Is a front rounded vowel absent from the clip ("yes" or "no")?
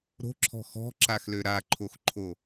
no